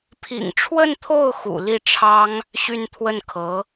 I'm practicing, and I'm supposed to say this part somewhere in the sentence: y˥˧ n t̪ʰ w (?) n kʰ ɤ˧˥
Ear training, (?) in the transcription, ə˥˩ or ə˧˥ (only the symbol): ə˥˩